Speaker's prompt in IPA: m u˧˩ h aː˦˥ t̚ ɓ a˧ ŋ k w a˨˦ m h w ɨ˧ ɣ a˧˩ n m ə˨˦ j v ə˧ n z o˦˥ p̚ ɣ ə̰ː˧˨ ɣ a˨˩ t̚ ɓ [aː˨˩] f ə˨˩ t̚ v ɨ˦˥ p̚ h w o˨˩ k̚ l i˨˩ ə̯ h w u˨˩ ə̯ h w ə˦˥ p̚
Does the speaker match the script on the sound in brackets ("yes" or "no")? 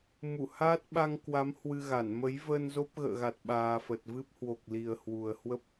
yes